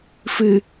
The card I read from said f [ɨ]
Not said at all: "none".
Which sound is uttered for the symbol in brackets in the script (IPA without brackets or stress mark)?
ɨ